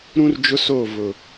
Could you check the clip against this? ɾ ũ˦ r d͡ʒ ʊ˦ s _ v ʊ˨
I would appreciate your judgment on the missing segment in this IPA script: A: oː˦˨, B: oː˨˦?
A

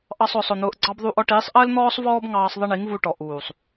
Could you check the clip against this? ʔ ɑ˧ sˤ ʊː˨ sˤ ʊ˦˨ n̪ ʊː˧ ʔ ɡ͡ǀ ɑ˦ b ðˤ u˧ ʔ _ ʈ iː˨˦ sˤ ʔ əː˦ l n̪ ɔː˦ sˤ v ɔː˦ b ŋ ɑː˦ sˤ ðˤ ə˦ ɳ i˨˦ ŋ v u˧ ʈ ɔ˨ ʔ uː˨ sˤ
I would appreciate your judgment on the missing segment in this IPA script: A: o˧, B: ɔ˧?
B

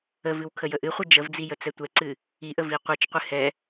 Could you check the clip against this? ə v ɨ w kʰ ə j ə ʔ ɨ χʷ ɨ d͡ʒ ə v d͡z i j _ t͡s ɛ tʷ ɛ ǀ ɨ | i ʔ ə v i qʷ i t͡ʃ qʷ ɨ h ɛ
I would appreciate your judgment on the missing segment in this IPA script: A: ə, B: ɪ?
A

